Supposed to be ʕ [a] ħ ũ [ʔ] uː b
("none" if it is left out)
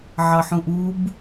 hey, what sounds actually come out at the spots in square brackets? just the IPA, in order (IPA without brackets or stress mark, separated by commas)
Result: ɑ, ʔ